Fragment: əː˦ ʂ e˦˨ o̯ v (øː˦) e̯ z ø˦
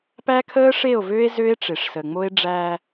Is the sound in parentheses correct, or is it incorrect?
correct